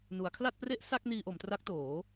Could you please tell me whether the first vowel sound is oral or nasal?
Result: oral